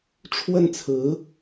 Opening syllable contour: falling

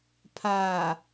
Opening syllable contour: low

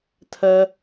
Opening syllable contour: high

